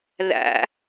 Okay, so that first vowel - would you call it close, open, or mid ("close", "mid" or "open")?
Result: open